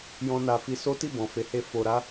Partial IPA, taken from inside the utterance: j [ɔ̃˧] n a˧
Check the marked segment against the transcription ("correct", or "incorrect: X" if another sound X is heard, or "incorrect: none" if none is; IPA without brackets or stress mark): incorrect: ɔ̃˦